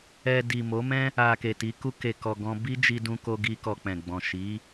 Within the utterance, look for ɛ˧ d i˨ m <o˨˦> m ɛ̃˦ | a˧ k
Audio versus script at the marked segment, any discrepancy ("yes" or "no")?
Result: no